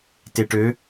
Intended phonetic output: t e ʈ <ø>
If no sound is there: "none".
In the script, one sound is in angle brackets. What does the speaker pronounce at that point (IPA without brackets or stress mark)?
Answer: ø